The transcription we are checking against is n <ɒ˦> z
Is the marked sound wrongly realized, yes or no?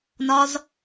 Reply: no